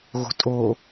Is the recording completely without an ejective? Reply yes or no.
no